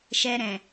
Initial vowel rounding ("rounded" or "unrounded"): unrounded